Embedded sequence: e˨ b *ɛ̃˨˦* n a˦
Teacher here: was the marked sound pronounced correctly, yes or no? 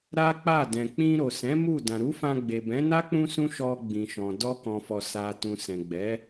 yes